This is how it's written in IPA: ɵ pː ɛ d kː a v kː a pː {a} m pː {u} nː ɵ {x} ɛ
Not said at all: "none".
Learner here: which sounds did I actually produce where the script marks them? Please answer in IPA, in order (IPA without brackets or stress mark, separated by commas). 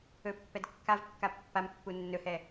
a, u, h